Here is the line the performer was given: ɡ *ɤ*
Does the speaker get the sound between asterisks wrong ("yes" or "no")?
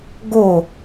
yes